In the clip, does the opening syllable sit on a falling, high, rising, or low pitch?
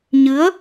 rising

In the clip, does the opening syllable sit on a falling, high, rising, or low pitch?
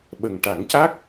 low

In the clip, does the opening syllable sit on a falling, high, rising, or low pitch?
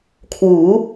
rising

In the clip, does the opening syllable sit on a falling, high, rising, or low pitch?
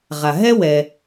low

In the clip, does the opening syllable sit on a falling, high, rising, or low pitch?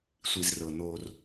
low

